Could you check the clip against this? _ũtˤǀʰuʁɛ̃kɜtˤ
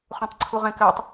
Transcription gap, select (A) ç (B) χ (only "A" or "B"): B